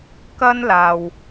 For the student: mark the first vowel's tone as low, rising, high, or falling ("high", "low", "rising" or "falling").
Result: high